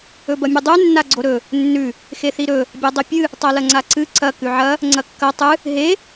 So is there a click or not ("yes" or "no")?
yes